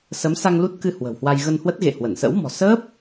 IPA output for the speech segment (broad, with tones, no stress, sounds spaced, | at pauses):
s ə˨˦ m s a˧ ŋ l u˦˥ t̚ k ɨ˧ h w ə̤˨˩ w h w a˧ j ɣ ə˧ n h w ə˦˥ t̚ ɣ ḛ˧˨ h w ə˧˩ n s ə̰˧˥ w m ɔ̤˨˩ s əː˦˥ p̚